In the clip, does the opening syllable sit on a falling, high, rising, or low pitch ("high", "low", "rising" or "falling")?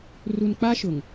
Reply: low